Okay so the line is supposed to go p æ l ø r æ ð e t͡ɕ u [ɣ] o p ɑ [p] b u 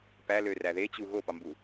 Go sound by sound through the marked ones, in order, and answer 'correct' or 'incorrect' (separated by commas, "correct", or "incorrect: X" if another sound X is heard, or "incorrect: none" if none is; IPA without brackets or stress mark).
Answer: correct, incorrect: m